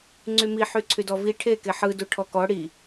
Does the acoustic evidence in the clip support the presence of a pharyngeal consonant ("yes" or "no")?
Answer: yes